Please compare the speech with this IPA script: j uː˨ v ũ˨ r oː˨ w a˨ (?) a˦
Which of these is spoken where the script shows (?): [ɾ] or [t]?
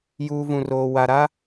ɾ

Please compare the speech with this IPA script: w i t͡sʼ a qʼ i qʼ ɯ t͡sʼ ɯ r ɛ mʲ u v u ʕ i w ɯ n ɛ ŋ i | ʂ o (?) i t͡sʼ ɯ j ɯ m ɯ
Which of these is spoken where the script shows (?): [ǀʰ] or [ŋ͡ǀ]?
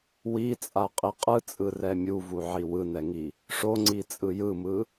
ŋ͡ǀ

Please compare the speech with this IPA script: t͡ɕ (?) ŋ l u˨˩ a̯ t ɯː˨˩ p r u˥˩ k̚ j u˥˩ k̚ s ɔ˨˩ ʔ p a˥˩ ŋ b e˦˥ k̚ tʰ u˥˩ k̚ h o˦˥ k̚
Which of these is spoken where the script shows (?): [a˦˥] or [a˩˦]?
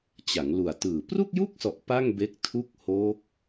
a˩˦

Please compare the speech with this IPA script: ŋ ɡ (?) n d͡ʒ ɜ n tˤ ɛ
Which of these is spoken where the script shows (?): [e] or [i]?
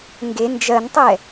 e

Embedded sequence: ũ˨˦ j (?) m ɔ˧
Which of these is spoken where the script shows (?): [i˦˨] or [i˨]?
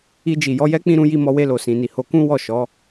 i˦˨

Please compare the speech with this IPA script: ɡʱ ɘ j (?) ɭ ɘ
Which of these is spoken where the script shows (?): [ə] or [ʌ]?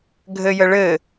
ə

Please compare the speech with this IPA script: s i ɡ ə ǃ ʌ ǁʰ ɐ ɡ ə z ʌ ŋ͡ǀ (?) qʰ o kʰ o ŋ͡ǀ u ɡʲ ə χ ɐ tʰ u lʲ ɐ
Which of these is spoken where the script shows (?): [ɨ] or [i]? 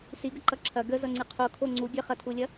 ɨ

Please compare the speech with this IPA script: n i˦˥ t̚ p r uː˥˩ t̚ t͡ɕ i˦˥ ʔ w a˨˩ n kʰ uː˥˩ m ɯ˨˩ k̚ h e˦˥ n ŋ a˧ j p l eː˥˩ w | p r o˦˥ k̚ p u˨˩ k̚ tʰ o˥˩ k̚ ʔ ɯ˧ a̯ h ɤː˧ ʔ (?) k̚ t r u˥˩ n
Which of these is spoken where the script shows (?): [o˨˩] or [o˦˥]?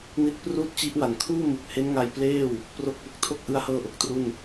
o˨˩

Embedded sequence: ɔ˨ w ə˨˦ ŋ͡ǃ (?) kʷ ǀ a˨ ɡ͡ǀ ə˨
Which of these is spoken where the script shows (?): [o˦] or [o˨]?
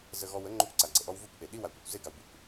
o˦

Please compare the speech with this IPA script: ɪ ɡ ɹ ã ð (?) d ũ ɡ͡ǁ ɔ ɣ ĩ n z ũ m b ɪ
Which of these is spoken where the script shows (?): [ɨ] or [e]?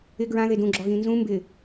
e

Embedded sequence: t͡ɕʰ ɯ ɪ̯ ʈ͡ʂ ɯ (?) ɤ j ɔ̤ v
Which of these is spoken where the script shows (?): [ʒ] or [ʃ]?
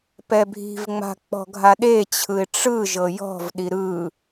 ʒ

